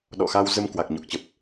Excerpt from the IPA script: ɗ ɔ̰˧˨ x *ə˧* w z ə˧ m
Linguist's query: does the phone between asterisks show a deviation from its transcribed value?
yes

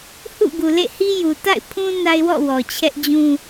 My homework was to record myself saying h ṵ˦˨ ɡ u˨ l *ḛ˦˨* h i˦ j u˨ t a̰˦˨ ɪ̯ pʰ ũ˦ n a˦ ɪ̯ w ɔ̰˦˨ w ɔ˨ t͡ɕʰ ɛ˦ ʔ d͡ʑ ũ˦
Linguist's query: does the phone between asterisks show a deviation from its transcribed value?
no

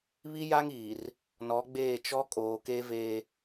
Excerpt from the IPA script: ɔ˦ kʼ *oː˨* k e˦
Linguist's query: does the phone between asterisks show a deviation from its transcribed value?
no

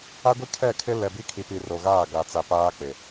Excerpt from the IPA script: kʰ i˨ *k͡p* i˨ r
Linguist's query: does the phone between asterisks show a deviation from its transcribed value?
yes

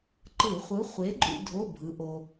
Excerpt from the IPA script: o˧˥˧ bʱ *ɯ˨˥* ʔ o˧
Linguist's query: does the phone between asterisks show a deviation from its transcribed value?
no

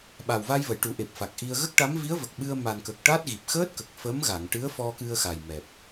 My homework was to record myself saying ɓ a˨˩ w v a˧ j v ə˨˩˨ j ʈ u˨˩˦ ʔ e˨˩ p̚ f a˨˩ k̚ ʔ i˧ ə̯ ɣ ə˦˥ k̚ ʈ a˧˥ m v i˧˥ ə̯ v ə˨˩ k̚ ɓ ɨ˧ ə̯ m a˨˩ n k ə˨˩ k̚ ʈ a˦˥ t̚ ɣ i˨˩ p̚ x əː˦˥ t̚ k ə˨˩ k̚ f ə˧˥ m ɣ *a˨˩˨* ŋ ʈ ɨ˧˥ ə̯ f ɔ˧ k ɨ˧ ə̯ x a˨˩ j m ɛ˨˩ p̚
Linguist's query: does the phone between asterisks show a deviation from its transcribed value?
no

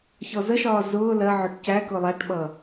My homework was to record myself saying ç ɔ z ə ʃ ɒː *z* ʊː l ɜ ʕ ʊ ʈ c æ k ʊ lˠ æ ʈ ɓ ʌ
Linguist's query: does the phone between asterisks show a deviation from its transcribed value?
no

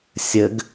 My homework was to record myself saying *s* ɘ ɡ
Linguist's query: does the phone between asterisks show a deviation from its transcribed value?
yes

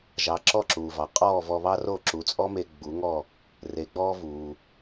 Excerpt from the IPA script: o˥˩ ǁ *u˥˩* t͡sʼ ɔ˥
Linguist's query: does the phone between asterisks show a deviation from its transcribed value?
yes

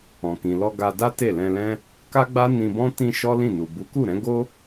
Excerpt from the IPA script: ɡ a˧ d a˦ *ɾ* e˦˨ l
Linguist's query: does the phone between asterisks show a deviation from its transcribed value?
yes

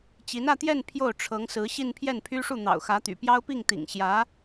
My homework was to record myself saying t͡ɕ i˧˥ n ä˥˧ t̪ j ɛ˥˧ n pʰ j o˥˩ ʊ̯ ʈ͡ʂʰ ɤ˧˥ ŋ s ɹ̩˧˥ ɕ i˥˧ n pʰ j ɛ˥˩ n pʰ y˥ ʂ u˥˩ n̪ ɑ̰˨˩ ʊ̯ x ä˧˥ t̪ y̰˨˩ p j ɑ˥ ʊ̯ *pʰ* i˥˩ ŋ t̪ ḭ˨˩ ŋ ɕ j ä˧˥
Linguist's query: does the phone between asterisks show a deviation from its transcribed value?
yes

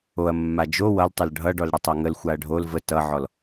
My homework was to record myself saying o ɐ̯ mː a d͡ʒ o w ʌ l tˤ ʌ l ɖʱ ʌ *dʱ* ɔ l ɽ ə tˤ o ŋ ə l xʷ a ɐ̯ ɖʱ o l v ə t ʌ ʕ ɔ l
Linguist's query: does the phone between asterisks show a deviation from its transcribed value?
yes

